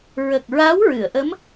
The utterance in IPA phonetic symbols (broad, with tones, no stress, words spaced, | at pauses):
ɹə˨˩k̚ ɹa˧˥w ɹɨ˨˩˨ə̯ʔə˧˥m